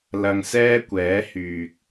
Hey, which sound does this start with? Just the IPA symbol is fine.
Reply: l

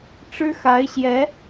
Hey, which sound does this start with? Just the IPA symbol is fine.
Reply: ʈ͡ʂ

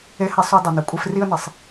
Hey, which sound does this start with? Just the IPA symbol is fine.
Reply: e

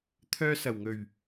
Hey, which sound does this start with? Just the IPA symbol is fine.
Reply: t̪ʰ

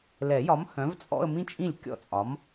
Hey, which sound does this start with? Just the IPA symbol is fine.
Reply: l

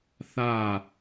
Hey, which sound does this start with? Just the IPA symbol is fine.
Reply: θ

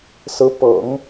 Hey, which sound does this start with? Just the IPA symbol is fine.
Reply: s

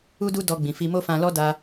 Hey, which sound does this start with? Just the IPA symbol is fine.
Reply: u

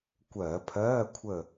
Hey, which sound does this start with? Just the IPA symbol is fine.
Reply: kʷ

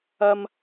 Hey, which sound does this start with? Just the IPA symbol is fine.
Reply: ɐ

